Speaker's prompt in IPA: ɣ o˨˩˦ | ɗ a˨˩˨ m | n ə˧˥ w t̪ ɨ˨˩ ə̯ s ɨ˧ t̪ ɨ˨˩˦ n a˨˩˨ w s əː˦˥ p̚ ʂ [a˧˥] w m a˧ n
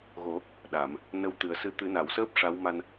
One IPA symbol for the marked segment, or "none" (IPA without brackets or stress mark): a˧˥